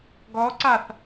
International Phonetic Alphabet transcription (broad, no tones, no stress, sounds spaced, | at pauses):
ɡ ɔ ǀ a θ